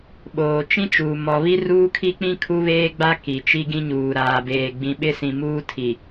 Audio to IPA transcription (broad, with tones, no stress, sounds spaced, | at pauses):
ɓ oː˨ t͡ʃ ĩ˦ t͡ʃ uː˨ m ɔ˨ β i˦ r uː˦ kʰ i˦ k͡p ĩ˦ kʰ u˦ β eː˦ ɡ͡b a˦ k i˨ t͡ʃ i˦ ɡ ĩ˦ ɲ uː˨ ɾ aː˨ b eː˨ ɡ͡b ĩ˨ ɓ ɪ˦ s ĩ˨ m uː˦ tʰ i˨